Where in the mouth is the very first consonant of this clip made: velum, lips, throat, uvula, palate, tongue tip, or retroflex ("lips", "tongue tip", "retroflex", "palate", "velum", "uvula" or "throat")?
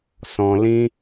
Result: tongue tip